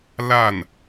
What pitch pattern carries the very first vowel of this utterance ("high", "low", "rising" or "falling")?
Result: falling